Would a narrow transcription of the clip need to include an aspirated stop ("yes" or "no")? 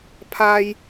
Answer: yes